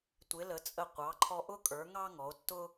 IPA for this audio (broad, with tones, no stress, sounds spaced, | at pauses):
tʷ ɪ˩˧ l ə˩˧ t͡sʼ ə˧˩ qʷ ɑ˩˧ ǃʰ ɔ˧ ʔ ʊ˥ kʼ ə˞˩˧ ŋ ɑ˥ ŋ ɔ˩˧ o̯ tː ʊ˥